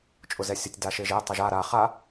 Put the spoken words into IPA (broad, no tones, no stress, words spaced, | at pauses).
t͡ʃʼʊzɛsʲətʲ daʃeʒe tˤɤʒa ɾa χa